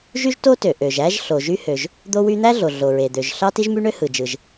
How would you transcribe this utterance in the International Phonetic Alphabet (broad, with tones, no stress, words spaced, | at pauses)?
ʒy˥ʒto˥tø˩ ʔø˩ʒæ˥ʒ ɬo˩ʒy˥hø˩ʒ | d̪o˥wy˥ n̪æ˥ɮo˩ ɮo˩ɹe˩ d̪ø˩ʒ ɬɑ˥ti˥ʒmy˥ɳø˥ hɯ˩d͡ʒɯ˩ʒ